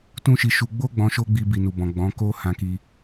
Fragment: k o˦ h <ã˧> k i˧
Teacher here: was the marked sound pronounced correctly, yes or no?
yes